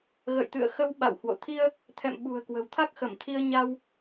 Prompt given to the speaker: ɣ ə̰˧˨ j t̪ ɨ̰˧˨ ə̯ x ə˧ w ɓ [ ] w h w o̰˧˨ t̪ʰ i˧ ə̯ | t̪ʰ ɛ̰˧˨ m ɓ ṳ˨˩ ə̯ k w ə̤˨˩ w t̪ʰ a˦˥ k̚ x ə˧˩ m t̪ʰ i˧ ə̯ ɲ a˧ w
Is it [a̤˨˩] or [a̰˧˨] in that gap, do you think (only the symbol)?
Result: a̰˧˨